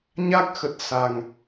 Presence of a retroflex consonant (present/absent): absent